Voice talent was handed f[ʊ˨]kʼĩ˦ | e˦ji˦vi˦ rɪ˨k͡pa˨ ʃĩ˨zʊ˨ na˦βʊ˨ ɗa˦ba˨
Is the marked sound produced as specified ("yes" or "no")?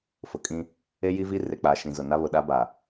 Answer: yes